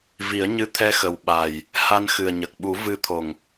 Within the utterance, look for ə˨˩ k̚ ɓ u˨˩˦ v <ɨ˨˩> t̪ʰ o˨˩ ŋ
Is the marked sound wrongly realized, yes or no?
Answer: yes